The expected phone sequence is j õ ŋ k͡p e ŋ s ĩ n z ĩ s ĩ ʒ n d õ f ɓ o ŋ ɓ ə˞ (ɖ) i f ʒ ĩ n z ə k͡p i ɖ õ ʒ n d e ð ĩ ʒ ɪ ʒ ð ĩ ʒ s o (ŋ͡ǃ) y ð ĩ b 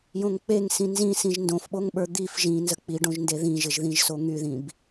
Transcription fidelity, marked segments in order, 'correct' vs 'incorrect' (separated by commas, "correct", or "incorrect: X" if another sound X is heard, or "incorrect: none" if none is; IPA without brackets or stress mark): incorrect: d̪, incorrect: ŋ